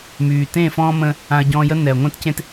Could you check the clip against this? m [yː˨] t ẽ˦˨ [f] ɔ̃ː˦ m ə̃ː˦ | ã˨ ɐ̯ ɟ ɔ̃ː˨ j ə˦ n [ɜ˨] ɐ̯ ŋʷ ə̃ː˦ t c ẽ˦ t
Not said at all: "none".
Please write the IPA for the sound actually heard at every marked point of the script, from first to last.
yː˨, f, ɛ˨

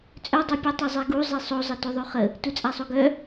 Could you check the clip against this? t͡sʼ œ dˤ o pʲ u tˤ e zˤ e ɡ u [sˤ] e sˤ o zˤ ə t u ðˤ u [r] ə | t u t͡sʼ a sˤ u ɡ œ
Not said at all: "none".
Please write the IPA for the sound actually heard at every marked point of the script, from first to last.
zˤ, χ

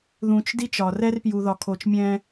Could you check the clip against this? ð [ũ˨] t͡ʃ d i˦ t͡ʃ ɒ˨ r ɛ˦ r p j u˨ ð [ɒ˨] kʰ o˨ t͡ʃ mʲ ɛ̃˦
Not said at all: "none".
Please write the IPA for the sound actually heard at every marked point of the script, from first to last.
ũ˨, ɒ˨

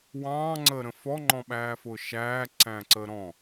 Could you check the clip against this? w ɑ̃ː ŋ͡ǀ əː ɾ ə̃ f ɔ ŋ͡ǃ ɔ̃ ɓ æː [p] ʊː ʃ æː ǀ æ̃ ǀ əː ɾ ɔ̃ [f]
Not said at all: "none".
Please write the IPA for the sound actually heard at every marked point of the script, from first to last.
f, none

